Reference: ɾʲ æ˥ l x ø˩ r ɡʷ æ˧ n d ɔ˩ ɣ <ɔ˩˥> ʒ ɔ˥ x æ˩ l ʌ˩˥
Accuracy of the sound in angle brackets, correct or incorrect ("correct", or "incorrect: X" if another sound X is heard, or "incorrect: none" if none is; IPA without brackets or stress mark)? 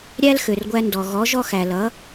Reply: correct